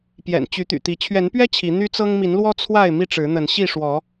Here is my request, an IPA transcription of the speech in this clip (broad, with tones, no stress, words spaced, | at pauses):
pjɛ̰˨˩nt͡ɕy˨˦t̪y̰˨˩t̪i˨˦ t͡ɕʰɥɛ˨˦npɥɛ˦ t͡ɕʰi˨˦ n̪y˦t͡sɤ˦ŋ mi˨˦nlwɔ˦ t͡sʰwa˥˨ɪ̯ mi˥˨ʈ͡ʂɻ̩˨˦n̪ə˨˦n ɕi˥˨ʂwɔ˨˦